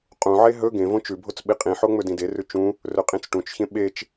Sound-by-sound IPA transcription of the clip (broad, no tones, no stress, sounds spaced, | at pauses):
qʼ ũ ʕ e ɦ ɵ ɡ ẽ v õ t͡ʃ ʉ bʱ o t͡s ɓ i qʼ ĩ ħ o ŋ͡m ɵ d ĩ d e r ʉ t͡ʃ ũ | r ɵ qʼ ĩ t͡s ʈ ũ t͡ʃ ç ẽ ɓ e t͡ʃ